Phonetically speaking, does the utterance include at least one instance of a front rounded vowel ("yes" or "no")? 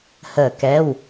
no